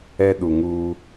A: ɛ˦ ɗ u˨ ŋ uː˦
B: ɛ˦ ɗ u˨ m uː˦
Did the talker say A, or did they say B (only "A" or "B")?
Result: A